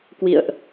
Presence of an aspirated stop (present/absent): absent